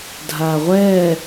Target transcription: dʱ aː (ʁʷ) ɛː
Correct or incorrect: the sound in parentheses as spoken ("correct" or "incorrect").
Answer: correct